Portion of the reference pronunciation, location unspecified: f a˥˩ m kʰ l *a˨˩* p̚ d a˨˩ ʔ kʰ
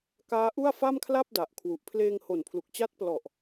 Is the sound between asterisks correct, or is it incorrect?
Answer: incorrect: a˥˩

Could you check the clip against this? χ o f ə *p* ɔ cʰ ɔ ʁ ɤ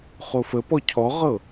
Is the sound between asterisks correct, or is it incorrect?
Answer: correct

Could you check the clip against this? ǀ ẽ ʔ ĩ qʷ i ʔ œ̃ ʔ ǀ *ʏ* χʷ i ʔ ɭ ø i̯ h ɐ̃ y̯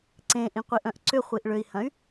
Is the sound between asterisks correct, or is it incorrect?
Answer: correct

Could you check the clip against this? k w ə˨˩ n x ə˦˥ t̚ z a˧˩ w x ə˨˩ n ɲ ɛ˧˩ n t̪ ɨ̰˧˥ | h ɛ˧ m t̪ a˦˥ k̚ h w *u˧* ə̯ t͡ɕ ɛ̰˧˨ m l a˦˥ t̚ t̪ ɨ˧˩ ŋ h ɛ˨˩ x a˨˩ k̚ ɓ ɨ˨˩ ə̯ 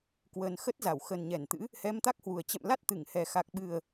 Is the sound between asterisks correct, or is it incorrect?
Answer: incorrect: u˨˩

